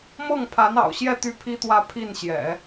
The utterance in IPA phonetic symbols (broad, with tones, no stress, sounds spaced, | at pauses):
m ɤ˥˩ ŋ pʰ a˧˥ n ɑ̰˨˩ ʊ̯ ɕ j ɛ˥˧ t̪ y˥˩ pʰ i˥ t̪ w ä˥˧ pʰ i˥˩ n ɕ j ɛ̰˨˩˦